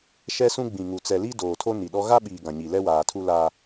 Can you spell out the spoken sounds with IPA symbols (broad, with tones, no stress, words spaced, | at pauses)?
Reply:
ʃɛ˦sũ˦ɡ͡bĩ˨ŋu˨ t͡sɛ˨li˦ doː˨tʰo˦ni˨ɗɔ˦ ɣa˦ɓiː˨ ɡã˨ɲi˨ lɛ˦waː˨tʰu˦ la˦